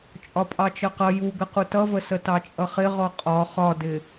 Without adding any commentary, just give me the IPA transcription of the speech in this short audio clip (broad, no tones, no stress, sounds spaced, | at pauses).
t͡ʃʼ ɒ pʼ ɑ t͡ʃ ʌ q ʌ j u ɡ ə q u t ʌ v ə s ə t ɑ t͡ʃʼ ʌ χ ɪ ʁ ɔ qʼ ɒ χ ɒ d ɪ